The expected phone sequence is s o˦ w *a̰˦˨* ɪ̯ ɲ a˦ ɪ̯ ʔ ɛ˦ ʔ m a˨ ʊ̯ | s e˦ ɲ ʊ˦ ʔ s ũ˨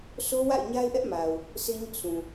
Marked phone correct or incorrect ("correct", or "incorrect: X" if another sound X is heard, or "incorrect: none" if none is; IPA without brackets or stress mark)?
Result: correct